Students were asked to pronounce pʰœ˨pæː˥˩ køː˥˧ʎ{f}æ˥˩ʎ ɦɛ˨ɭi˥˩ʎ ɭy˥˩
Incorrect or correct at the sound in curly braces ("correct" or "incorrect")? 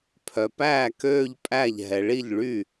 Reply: incorrect